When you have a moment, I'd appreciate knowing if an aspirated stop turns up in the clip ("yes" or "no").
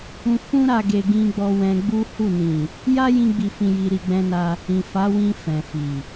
no